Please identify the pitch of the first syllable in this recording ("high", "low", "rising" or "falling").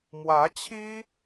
rising